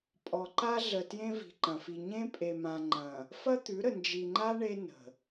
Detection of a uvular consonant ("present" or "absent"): absent